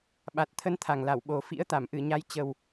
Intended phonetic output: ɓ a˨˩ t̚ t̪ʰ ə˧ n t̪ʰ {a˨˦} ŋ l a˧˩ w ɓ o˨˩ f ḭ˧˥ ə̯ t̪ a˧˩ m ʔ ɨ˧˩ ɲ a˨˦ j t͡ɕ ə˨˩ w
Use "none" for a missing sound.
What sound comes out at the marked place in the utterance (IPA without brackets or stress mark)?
a˨˩